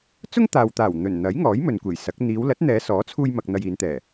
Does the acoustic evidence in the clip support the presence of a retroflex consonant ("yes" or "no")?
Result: no